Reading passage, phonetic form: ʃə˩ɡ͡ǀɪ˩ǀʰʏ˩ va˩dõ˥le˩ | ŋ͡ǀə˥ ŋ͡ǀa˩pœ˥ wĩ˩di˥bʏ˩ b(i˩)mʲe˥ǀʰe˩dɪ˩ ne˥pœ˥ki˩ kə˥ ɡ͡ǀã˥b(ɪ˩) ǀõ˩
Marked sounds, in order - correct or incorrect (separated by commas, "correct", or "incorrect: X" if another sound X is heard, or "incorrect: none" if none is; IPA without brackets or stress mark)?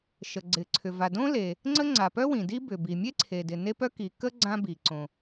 correct, incorrect: i˩